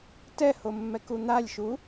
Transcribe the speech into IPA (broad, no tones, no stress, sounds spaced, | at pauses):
t ɛ h o mː ɛ k u n̪ a lʲ ʃ u